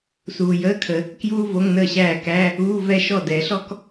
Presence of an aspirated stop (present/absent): present